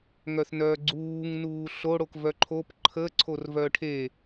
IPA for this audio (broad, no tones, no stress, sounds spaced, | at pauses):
ŋ œ θ n œː ɡ͡ǀ uː ŋ n uː ɬ o ɽ o k v œ ǃʰ o p ǃʰ ə ǀʰ o r v œ ʈʰ e